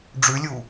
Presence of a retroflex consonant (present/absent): present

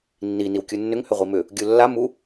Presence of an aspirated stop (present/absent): absent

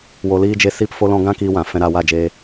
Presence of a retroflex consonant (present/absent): absent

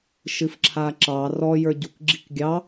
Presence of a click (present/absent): present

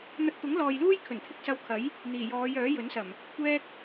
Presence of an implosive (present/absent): absent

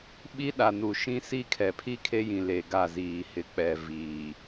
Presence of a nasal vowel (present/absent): present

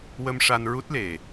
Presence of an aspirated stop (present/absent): absent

